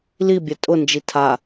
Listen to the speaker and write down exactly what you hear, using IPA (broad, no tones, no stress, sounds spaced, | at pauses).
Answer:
l i bʲ ɛ tʼ ʊ n d͡ʒ i tʰ a